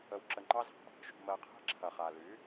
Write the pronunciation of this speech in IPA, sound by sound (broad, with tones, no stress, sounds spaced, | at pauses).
ə˧ w ǁ ə˧ ŋ͡ǃ ɑ˦ z ɑ̤˨ | ʃ ṳ˧ m ɜ˧ qʰ e̤˦ ǁʰ ɐ˨ χ a˨ l y˨˦